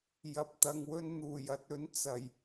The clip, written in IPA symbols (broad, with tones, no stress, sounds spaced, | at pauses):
j ɐ˨ p̚ t̪ ɐ˨ ŋ w ɵ˧ n n̪ uː˨˩ j ɐ˧ t̚ ɵ˨˥ n t͡s ɐ˨˩ j